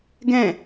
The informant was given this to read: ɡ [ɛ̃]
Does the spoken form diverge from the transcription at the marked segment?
no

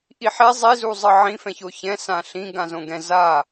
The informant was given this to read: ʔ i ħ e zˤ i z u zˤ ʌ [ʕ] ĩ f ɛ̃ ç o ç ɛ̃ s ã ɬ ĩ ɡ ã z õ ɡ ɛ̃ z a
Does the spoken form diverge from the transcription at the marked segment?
no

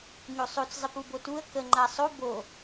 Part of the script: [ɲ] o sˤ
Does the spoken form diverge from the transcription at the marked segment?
no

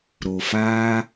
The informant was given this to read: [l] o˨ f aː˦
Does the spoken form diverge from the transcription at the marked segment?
yes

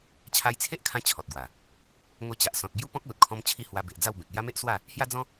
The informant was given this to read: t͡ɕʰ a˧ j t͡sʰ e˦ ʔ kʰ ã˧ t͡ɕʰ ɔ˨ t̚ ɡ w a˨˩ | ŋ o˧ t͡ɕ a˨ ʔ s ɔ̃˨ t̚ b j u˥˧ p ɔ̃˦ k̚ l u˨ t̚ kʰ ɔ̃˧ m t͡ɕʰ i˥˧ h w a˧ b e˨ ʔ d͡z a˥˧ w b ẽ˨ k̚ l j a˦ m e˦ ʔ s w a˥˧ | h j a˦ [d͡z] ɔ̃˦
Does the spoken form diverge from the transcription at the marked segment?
no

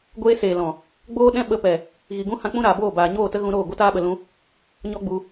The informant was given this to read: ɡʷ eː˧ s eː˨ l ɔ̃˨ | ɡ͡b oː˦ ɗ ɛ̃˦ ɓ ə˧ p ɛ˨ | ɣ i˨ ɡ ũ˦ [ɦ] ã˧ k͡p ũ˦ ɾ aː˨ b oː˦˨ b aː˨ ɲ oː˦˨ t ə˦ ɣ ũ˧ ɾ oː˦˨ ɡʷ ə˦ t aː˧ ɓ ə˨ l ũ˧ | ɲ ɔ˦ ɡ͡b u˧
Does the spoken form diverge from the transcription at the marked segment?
yes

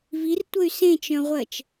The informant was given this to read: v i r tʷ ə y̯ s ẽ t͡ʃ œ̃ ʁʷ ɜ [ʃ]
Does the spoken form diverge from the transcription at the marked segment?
yes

